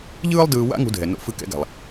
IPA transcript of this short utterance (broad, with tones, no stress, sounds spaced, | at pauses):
ʎ ɯː˥ lˠ d ɯː˧ w a̰˥ ŋ ṳ˧ dʱ ɛ˩ n o̰˧ f ɯ˧ k ɛ̰˧ ɡ a̤˩ lˠ